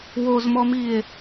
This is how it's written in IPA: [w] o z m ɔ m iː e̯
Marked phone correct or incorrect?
correct